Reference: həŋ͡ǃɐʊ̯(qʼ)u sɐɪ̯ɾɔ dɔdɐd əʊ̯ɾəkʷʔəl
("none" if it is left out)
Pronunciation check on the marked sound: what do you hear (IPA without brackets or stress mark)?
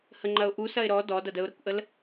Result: ʔ